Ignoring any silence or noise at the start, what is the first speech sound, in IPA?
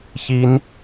ç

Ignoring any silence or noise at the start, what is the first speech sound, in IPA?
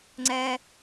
ŋ͡ǀ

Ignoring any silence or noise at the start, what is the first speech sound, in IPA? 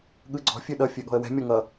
ɠ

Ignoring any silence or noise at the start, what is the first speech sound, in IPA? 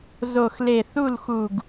z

